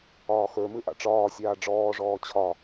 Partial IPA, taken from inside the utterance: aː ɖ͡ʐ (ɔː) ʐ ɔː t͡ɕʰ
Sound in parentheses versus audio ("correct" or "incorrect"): correct